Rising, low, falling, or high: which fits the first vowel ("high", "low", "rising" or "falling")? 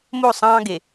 falling